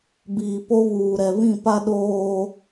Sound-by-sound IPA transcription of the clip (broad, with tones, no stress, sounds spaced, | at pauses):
b iː˨ p o˦ β uː˨ ɾ ɛ˨ β ĩ˦˨ p a˦ ɗ oː˦